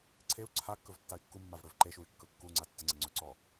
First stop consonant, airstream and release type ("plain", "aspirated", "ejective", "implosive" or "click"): click